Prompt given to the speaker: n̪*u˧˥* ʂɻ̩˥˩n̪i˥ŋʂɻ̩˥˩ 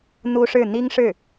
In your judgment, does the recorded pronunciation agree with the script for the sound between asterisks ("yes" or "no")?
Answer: no